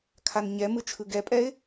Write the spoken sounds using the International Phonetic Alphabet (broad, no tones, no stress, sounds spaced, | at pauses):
kʰ a n ɲ ɛ m ɯ t͡ʃʰ ɯ ɡ ɛ pʼ ɛ ɪ̯